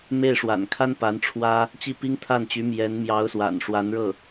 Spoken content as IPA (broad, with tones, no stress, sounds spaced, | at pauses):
m e˥˩ ɪ̯ ʂ w a̰˨˩ n kʰ a˥ n p a˧˥ n ʈ͡ʂʰ w ä˥ | t͡ɕ i˥˩ p i˥ ŋ t̪ʰ a˥˩ n t͡ɕ y˧˥ m j ɛ˧˥ n m j ɑ˧˥ ʊ̯ s w a̰˨˩ n ʂ w a˧˥ n ɻ ɤ˥˩